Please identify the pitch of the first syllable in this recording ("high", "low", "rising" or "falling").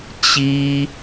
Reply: high